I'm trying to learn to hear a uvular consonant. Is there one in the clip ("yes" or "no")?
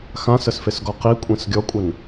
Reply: yes